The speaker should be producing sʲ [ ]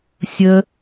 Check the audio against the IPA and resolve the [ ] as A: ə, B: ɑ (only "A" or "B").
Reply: A